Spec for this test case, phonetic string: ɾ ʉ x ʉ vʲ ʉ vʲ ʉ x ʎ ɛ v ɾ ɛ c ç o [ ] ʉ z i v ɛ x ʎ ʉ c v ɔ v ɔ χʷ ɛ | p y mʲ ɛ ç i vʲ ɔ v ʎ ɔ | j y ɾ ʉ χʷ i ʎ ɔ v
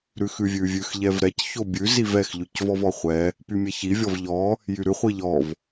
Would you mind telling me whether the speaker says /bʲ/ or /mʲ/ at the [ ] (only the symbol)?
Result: bʲ